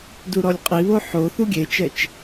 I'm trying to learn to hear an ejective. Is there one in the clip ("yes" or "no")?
yes